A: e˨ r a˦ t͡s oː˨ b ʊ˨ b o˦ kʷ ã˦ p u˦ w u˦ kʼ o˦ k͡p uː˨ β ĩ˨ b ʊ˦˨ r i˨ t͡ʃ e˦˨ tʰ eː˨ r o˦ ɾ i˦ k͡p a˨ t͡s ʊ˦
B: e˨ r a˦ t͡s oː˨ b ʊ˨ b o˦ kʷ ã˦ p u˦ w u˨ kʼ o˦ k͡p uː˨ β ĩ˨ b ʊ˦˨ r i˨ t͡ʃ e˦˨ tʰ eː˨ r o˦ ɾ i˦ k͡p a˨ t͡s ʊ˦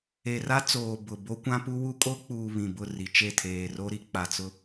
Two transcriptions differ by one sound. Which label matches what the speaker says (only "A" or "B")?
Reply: A